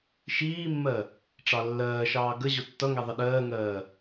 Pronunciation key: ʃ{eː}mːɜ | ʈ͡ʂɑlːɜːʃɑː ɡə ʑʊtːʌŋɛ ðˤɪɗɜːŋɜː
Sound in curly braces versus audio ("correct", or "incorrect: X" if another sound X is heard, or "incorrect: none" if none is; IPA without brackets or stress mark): incorrect: iː